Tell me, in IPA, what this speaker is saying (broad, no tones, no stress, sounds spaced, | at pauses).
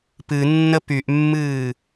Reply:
p ɨ nː ə p y ʔ mː ɨː